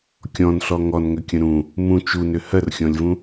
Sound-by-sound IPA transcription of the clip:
kʲ ɔ̃ n ɬ ɔ ŋ ɔ n ŋ ʏ kʲ ə̃ ɾ ũ | m ũ t͡ʃ u n ʏ h ɜ r xʲ ɔ̃ lʲ v ũ

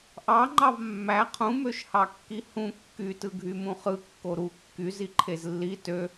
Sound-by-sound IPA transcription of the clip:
ʔ ɑ ŋ͡ǃ ɑ v mː æ qʰ ũ m ø ʃ h ɑ kː i h ũ kː y t ɯ ɡʱ y m ũ χ ɯ kː o ɾ u kː y z i ǃʰ e z lː i t ø

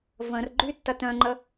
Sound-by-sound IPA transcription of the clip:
v ə̃ r ɡ͡ǃ y tː ɐ t œ̃ ŋ͡ǃ ə

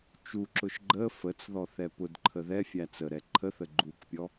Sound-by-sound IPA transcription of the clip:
t͡ʃ u ǁ ʊ ʃ ɡ͡ǃ ə f ə t͡s ð ɔ θ ɛ p ʊ d ǃʰ ə ð ɛ fʲ æ t͡s ə ɾ ɛ ǃʰ ə θ ə ɡ͡ǃ u k pʲ ɔ

